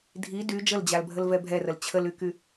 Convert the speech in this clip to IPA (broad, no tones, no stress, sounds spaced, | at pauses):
dʱ i d y d͡ʒ ə l d͡ʑ a l bʱ ə l v ɛ bʱ ɛ r ə l t͡ɕʰ ə l y k y